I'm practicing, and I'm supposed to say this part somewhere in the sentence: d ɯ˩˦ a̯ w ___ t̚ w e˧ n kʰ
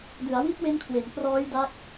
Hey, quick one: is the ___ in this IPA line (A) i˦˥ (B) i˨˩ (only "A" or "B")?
A